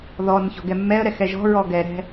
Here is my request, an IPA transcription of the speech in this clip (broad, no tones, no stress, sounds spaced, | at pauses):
ð ɔ n ç ɔ̤ ɡ ɛ mː ɛ ə̯ ɾ ɛ x ɛ ʒ ɔ̤ ɹ ɔ ɡ ɛ ɾ ɛ̤